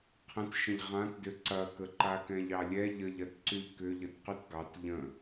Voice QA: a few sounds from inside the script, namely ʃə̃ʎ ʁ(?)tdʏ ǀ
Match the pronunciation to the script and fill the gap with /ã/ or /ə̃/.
ã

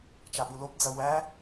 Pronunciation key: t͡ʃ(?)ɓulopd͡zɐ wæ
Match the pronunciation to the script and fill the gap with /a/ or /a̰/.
a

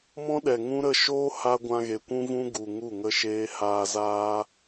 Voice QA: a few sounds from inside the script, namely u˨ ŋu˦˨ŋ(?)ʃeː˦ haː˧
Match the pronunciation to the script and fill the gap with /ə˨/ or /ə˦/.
ə˦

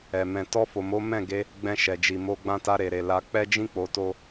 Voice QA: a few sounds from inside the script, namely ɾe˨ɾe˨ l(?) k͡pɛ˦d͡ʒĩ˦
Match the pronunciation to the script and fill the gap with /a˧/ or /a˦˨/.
a˧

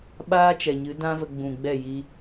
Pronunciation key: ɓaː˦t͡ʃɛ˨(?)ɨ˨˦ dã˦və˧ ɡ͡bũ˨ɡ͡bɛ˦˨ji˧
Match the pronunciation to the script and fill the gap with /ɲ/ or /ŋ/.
ɲ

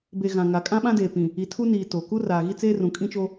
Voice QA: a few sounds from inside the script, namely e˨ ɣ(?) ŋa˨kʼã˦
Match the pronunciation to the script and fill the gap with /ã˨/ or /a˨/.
ã˨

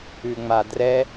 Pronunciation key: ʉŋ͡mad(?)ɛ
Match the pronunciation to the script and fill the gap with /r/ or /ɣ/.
r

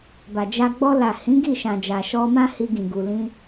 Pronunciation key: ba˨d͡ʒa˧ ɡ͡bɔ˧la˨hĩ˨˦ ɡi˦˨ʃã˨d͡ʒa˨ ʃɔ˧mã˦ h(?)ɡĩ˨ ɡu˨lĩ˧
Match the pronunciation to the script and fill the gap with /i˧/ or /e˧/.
i˧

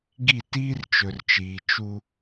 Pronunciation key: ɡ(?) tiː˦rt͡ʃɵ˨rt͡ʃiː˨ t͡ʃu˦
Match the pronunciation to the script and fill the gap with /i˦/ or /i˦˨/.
i˦˨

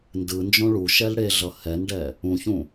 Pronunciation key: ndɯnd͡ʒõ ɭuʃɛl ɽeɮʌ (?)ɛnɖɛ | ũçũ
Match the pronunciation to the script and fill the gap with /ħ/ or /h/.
h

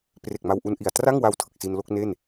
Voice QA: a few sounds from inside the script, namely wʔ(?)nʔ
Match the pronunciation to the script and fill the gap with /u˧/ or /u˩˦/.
u˧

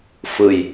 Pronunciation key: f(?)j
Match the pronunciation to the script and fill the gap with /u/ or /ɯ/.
ɯ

